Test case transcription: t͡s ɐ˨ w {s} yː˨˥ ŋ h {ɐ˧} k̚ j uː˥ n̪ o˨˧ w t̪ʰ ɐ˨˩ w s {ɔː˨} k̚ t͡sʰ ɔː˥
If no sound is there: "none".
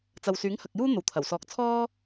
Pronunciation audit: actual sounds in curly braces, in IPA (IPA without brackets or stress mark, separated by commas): s, ɐ˨, ɔː˧